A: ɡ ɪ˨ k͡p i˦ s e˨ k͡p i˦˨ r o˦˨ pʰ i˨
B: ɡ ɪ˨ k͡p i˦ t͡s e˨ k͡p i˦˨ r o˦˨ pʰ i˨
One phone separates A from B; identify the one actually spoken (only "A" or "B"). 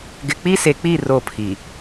A